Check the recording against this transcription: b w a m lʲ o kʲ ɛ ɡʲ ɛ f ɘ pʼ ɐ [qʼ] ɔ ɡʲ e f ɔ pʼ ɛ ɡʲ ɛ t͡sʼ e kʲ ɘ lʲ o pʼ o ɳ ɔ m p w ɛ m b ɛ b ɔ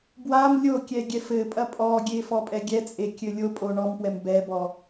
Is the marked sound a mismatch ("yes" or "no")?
yes